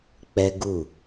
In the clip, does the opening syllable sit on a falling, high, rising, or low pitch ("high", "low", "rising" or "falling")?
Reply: high